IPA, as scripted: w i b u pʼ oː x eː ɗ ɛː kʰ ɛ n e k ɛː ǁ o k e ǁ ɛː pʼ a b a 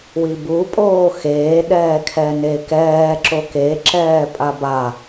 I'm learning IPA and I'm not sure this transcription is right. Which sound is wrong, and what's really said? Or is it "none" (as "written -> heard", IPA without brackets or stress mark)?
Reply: none